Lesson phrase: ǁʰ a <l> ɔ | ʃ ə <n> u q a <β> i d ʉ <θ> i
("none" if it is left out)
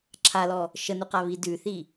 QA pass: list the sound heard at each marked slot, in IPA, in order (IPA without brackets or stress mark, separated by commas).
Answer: l, n, β, θ